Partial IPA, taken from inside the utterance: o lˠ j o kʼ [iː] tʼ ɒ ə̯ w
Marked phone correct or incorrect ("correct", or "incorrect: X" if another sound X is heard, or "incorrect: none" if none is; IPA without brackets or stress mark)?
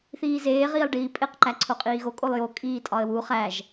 correct